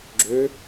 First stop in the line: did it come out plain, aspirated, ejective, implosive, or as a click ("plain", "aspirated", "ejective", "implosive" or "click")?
click